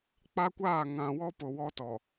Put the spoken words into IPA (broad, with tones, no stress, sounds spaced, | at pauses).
k͡p a˦ kʷ aː˦˨ ŋ ã˨ w ɔ˦ p ʊ˨ w ɔ˦ t ɔ˨